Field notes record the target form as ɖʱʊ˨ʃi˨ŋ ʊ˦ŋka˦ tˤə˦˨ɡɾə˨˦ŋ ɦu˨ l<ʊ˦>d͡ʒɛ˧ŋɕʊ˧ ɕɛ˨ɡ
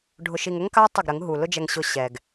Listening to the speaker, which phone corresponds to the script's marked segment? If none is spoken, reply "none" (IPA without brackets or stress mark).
ʊ˦